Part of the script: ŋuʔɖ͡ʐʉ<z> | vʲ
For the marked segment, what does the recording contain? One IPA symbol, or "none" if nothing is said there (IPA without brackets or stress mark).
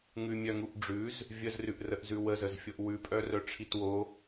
z